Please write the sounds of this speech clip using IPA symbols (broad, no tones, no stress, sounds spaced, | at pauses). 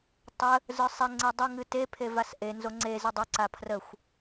tˤ ə | z ə˞ sˤ ɛ ŋ͡ǀ e dˤ ʊ ŋ ɨ t e pʰ e v a s ʔ e n z o ŋ͡ǀ e z ɨ dˤ ɵ ǀ a pʰ r ə xʷ